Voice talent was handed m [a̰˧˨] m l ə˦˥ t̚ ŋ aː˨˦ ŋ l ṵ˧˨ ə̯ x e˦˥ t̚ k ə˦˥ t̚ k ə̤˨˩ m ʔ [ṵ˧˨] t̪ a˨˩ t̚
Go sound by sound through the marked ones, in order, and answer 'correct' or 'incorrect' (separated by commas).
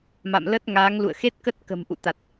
correct, correct